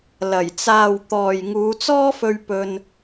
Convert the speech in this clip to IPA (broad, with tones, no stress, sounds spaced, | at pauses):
l ɐ˨˩ j t͡s aː˨ w t̪ ɔː˨ j ŋ uː˨˧ t͡s ɔː˥ f ɵ˧ ɥ p ɵ˧ n